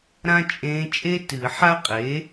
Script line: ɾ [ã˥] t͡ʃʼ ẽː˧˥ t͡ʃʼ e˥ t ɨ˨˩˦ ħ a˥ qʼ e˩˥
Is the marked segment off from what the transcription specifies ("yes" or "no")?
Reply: no